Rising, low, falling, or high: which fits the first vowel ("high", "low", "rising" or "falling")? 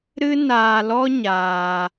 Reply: high